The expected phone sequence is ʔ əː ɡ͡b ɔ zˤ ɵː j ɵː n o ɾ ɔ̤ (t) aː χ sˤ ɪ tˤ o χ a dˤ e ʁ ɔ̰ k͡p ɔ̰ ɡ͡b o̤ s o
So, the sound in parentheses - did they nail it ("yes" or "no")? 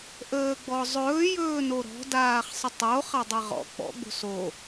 no